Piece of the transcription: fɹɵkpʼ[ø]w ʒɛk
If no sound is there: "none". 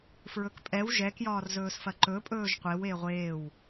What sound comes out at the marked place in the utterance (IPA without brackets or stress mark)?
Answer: ɛ